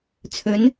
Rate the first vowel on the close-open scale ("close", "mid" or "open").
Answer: mid